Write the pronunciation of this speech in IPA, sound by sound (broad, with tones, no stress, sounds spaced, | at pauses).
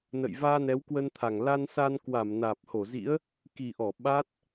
n ə̰˧˨ j v aː˧ n ɛ˨˦ w k w ə˧ n t̪ʰ a˨˩ ŋ l a˧ n s a˧ n k w a˧˩ m n aː˨˩ p̚ h o˧˩ z ḭ˧˥ ə̯ | k i˨˩ ʔ ɔ˧˩ ɓ a˦˥ t̚